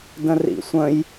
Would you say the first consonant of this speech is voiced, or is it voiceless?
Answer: voiced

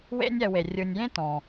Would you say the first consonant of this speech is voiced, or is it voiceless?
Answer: voiced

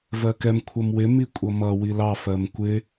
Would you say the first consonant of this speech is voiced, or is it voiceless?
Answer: voiced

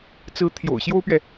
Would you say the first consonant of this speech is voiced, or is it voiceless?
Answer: voiceless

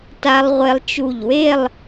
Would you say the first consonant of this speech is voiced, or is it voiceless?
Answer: voiceless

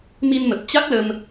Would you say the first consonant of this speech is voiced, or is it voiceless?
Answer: voiced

